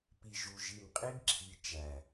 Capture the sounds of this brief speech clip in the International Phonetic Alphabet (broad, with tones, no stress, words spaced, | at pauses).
pi˨ʒu˨ ʒi˨mqʼi˦ɡǁʰi˨ t͡ʃæ˨